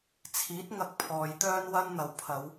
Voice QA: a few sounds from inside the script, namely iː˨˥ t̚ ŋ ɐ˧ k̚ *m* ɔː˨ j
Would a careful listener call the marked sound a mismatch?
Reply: yes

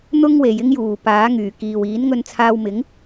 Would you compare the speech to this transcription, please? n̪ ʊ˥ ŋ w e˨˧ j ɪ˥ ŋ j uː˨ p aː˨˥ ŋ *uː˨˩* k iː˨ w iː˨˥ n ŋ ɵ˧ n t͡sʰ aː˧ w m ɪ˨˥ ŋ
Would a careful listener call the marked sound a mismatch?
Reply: yes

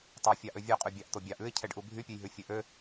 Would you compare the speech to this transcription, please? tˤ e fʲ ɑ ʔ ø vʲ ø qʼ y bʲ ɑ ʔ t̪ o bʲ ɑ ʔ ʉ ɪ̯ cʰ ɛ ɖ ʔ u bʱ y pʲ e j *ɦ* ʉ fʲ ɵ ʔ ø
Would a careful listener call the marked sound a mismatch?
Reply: no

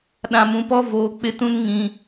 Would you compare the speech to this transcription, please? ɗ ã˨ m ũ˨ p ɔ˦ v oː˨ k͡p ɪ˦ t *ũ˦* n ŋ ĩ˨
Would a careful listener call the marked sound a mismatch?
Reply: no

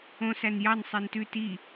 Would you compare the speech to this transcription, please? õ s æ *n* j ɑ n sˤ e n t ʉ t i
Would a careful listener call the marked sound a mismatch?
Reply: no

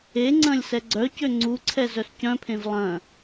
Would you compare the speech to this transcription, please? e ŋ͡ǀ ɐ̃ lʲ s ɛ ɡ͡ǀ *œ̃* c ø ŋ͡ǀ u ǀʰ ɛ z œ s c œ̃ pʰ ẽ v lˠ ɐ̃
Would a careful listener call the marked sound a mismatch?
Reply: yes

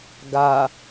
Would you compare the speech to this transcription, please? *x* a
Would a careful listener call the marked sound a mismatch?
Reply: yes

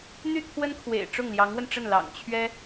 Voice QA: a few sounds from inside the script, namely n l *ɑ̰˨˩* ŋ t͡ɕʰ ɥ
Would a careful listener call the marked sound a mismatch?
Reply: no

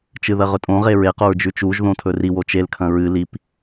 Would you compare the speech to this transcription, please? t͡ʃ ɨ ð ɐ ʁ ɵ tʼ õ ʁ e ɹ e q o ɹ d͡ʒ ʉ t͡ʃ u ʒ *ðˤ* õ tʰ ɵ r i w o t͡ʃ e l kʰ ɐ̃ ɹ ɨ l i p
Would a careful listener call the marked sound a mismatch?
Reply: yes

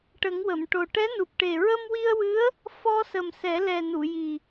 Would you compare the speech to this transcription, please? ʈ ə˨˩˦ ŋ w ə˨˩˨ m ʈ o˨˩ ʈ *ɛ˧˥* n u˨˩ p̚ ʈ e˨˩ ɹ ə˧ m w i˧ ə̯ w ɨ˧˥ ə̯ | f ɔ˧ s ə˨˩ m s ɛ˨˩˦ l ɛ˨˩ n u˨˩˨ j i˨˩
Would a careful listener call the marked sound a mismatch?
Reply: no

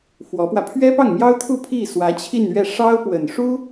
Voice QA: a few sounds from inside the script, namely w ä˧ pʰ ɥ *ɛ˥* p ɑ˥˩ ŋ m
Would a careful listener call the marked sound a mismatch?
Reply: no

